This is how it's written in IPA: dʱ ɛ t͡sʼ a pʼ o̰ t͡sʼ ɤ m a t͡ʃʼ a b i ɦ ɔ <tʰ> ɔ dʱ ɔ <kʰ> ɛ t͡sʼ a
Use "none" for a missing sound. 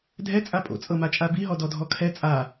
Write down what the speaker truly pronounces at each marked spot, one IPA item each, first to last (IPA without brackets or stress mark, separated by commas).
d, kʰ